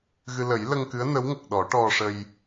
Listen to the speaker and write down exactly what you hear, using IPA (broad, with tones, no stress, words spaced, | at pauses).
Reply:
ɣɨ˧ lə˨˩˦jlə˧ŋkɨ˧˥ə̯ nə˧˥wŋə˨˩k̚ɗɔ˨˩˦ ʈɔ˧ʂə˧j